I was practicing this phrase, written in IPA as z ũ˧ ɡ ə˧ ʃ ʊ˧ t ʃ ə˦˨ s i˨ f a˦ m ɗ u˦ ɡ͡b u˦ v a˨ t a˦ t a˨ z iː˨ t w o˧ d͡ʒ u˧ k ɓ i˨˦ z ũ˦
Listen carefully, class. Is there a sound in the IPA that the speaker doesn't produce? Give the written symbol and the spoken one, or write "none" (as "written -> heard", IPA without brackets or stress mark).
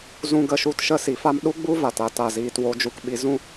ʊ˧ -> u˧